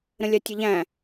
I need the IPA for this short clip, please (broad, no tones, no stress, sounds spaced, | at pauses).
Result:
ɾ ə̃ lʲ a tʲ ə ʎ æ̃